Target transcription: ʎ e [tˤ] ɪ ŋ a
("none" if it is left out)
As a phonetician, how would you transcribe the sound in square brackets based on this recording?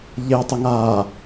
tˤ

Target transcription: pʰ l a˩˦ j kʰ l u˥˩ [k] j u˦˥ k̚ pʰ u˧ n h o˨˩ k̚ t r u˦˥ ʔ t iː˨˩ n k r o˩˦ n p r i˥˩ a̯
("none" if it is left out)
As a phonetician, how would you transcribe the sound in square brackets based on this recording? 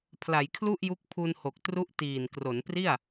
ʔ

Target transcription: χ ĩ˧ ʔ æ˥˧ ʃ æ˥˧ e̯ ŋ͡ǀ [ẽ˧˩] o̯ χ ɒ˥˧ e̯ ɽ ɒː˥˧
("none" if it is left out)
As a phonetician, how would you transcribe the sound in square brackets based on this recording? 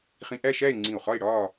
ĩ˧˩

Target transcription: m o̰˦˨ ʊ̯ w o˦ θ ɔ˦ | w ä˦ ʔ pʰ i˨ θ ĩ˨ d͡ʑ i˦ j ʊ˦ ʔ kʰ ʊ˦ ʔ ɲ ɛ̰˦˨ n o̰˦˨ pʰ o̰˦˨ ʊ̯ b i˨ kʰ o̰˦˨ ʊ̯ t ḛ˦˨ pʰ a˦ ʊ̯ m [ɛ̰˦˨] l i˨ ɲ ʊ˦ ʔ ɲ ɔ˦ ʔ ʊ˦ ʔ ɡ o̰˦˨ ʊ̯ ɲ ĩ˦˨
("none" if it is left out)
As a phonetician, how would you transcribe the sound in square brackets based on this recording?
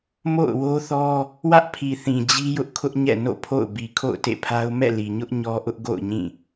ɛ̰˦˨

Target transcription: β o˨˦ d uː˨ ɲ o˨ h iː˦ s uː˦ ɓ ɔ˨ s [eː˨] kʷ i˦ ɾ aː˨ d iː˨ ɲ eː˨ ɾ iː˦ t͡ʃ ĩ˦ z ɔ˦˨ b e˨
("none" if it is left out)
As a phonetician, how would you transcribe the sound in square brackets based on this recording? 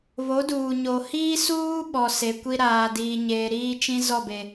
e˨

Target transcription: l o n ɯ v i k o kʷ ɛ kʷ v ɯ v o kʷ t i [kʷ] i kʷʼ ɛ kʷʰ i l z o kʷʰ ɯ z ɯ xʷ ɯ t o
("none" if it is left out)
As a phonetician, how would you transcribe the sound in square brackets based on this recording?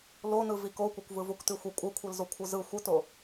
xʷ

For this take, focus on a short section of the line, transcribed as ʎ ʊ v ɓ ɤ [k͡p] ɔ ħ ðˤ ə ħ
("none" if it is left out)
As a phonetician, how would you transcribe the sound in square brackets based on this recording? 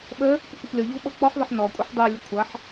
k͡p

